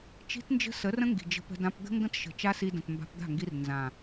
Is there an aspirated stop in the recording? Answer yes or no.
no